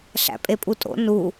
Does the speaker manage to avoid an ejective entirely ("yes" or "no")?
no